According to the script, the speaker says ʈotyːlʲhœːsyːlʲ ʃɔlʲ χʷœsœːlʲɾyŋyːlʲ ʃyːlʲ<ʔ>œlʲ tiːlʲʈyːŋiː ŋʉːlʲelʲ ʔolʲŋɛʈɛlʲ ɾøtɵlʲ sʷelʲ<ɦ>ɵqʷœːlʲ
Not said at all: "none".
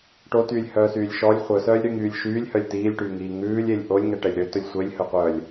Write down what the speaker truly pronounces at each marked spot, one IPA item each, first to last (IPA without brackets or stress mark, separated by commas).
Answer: h, h